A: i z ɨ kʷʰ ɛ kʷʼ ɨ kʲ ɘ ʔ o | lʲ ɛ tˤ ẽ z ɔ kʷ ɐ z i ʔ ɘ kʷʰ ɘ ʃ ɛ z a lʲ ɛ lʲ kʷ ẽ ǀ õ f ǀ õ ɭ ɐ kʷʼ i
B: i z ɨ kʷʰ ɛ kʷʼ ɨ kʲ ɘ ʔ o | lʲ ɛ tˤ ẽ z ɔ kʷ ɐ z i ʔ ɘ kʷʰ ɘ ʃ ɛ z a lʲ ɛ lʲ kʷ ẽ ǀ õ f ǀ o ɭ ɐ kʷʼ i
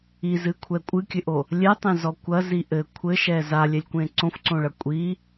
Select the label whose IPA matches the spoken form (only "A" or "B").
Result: A